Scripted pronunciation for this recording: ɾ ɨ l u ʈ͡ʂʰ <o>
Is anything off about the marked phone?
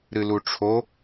no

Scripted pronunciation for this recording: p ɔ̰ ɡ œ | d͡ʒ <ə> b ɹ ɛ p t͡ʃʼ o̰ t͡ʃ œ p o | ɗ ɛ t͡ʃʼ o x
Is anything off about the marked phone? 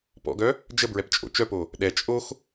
no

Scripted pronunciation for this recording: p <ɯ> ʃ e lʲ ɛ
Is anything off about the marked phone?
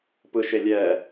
no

